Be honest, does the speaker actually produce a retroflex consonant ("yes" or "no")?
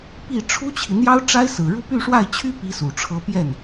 yes